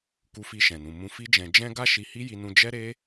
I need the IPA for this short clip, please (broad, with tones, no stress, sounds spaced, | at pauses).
k u˧ f i˧ ʃ ɛ̃˨ n ũ˨ m ũ˧ f i˦ d͡ʒ ɛ̃˧ d͡ʒ ɛ̃˦ ɡ a˦ ʃ i˧ h i˦ j i˧ n ũ˧ d͡ʒ ɛ˦ ɾ e˦